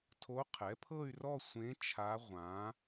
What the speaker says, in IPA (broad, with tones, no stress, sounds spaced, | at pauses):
tʰ o˧˥ qʰ ɛ˩˥ pʰ ɤ˥˧ y̯ r ɔ˥˧ sʷ ẽ˧˥ t͡ʃʰ a˧˥ ʁʷ ã˩˧